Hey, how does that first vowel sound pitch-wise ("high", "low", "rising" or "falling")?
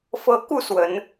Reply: high